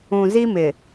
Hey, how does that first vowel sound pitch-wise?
low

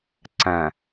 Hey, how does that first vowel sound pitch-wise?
low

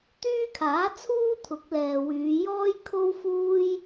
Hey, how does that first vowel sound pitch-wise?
high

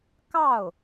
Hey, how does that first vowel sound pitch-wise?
falling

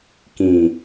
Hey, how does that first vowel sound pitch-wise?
low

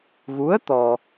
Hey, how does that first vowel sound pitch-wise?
rising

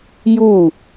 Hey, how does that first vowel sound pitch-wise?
falling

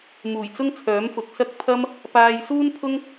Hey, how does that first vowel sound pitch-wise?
low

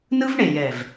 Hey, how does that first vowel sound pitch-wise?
high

